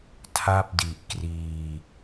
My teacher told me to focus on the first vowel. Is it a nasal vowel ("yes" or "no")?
no